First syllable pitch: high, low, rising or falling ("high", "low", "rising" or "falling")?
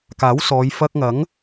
rising